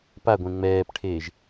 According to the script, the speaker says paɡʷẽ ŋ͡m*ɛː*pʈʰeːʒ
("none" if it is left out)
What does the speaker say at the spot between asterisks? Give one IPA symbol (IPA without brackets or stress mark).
ɛː